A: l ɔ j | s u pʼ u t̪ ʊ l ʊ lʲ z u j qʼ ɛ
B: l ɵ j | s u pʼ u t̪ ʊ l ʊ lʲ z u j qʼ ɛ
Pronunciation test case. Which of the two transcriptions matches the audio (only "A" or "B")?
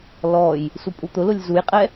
A